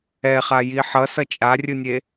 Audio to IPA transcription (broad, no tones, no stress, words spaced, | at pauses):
ɛχaji ħʌsʌ t͡ʃʼarʲɯnʲe